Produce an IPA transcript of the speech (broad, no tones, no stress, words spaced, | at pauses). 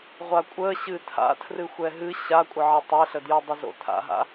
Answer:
ʁʷakʷʼə ɕɨtʰa̰ tʰrɨxʷɛɦɨ ɕakʷʼəʕə tˤɛɬədjodˤə zo̰tʰa̰ɦa̰